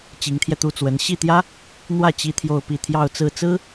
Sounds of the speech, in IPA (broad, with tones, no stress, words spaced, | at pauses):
t͡ɕi˧˥ŋt̪ʰjɛ˧t̪u˥˩t͡swə˧˥n ɕi˥˩t̪jä˥ | n̪wä˥˩ t͡ɕi˥t̪ʰjo˥˧ʊ̯pi˥˧ t̪ʰjɑ˥˧ʊ̯t͡sɹ̩˥˩t͡sɹ̩˥